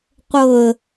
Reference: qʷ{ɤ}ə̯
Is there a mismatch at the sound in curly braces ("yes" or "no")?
no